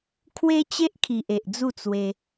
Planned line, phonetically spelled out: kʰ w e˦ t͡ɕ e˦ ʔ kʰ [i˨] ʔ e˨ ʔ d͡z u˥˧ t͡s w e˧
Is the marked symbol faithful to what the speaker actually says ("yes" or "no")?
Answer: yes